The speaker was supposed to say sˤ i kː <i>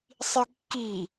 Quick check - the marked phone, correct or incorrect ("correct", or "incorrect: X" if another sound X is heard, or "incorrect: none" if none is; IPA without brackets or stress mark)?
correct